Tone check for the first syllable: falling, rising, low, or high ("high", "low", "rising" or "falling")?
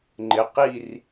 low